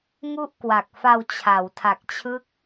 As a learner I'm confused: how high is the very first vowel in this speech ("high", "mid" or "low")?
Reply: high